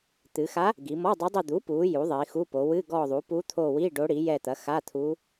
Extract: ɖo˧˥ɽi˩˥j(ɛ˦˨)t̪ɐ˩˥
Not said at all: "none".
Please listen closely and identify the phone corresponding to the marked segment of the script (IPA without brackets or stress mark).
ɛ˦˨